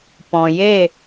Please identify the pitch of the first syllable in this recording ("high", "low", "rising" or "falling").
low